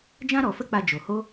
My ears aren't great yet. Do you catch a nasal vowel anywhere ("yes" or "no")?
yes